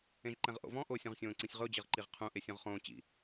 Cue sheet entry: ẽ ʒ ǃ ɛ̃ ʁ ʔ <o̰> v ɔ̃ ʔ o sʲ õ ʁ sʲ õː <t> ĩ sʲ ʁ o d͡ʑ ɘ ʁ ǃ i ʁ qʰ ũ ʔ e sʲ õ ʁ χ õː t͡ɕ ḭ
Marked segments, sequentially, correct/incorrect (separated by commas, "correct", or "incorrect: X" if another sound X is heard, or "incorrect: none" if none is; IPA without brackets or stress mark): correct, incorrect: ǀ